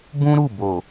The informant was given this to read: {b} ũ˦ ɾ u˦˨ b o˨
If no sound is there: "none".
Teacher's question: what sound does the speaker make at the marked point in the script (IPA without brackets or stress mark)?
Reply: b